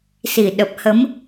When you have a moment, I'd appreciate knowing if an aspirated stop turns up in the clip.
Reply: no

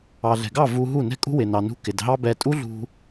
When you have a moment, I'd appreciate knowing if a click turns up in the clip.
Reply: no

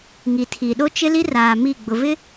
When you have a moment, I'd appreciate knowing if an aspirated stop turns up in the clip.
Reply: yes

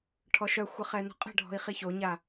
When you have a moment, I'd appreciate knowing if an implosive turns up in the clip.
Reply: no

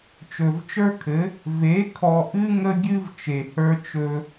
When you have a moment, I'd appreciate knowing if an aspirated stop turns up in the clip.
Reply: yes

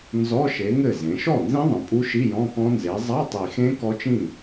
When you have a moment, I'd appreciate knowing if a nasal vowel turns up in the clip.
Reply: yes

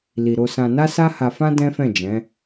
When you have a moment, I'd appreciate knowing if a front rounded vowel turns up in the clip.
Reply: no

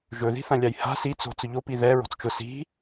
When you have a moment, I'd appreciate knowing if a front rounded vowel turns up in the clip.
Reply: no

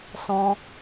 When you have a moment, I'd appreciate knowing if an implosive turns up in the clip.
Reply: no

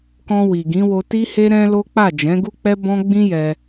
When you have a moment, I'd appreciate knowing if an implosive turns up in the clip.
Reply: no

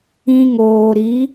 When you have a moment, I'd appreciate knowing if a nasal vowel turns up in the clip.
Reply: yes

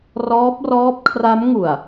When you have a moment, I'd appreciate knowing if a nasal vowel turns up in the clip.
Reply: no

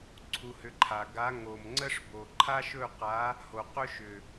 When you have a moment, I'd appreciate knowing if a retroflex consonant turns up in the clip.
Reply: yes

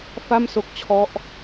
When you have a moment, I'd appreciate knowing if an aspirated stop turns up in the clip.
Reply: yes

